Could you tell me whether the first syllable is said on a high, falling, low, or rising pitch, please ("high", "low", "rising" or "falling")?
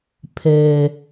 low